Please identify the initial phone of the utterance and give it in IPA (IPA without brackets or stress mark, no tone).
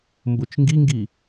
m